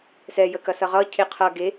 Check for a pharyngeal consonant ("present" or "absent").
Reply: absent